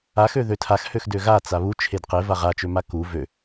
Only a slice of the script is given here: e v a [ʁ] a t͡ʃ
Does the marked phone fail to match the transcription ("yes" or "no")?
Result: no